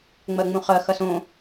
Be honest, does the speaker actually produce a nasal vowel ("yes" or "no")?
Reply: yes